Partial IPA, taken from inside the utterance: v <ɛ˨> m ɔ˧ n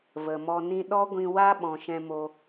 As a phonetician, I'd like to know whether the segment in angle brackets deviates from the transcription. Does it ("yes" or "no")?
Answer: yes